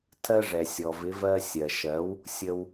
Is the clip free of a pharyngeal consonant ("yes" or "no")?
yes